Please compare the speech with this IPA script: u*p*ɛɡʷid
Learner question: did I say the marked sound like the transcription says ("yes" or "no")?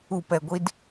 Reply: yes